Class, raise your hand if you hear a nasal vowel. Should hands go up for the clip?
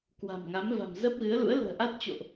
no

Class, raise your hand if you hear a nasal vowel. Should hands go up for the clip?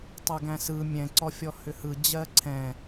yes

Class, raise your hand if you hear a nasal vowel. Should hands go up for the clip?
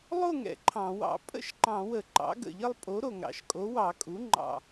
yes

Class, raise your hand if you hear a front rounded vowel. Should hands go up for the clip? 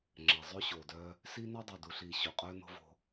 yes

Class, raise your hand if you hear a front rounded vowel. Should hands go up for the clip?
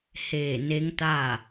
no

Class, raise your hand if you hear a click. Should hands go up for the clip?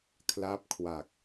no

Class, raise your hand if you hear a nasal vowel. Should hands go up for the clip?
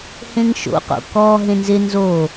yes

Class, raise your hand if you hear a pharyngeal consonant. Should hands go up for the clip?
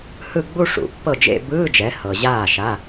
no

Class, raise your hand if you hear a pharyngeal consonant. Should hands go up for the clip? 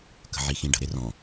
yes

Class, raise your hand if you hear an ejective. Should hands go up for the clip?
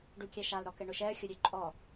yes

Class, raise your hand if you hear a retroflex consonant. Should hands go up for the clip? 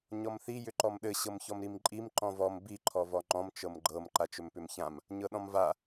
no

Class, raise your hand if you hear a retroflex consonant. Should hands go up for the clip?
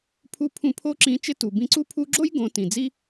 no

